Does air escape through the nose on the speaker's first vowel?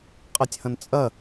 no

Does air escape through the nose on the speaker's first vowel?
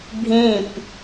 yes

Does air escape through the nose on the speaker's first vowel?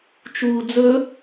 no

